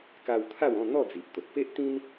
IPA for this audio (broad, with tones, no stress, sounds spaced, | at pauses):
k a˧ w t̪ʰ a˥˧ w ɔ̃˥˧ n̪ ɔ˥˧ d͡z i˨ ʔ t̪ o˨ t̚ p e˦ ʔ t̪ ĩ˦ n